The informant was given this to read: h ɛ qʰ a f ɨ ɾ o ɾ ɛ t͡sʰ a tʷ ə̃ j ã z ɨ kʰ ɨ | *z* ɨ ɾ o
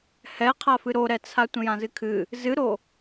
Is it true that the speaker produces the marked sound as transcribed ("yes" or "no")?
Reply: yes